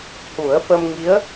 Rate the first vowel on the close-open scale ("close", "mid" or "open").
close